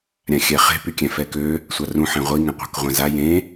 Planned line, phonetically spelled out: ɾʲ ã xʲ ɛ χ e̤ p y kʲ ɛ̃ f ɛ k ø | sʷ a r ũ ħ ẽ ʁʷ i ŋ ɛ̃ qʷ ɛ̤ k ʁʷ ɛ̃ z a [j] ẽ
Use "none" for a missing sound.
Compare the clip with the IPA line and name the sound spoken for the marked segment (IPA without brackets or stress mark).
j